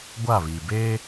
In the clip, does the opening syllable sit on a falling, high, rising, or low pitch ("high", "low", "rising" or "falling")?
falling